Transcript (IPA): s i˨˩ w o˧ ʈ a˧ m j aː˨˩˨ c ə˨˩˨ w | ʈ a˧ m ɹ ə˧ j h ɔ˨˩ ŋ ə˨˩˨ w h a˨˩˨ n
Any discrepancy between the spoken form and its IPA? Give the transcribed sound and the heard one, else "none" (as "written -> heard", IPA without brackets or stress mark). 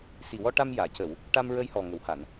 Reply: o˧ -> ɔ˧